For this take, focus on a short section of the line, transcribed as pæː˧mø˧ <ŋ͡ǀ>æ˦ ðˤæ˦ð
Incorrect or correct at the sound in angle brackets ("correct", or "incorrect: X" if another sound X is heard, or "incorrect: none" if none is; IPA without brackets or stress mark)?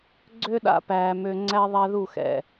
correct